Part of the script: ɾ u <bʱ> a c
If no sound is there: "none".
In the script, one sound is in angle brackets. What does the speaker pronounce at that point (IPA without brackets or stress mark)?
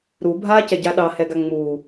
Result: bʱ